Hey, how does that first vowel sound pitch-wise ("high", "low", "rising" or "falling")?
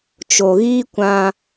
low